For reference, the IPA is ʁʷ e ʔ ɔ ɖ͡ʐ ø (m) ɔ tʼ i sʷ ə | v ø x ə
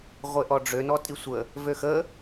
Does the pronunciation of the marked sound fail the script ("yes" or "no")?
yes